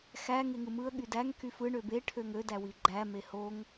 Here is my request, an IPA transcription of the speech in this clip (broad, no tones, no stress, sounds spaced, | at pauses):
x æ ŋ e ŋ ɯ m ɯ ə̯ ɠ y d æ ŋ k y f ɯ ɳ ø b e ʈʰ ø ŋ ø d æ w i ɡ͡ǃ æ m e h o ŋ